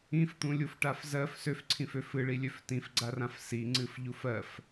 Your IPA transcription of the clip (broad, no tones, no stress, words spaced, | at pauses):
ĩft̪ũlʲufʈaf zɜf søfǀʰĩfø fɨɭilʲøf tĩfɡ͡ǀarãf siŋ͡ǀɨfʎuf ɜf